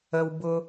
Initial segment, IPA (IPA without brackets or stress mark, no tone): ə